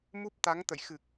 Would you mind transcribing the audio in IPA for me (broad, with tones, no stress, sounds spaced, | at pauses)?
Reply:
m u˦˥ p̚ t̪ a˨˦ ŋ t̪ ə̰˧˨ j x ɨ˨˩ k̚